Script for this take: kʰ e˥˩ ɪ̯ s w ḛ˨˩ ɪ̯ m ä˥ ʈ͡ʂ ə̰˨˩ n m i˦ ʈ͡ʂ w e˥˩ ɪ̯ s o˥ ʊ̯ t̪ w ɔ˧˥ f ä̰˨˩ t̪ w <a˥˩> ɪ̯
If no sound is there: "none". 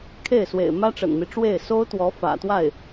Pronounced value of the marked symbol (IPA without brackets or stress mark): a˥˩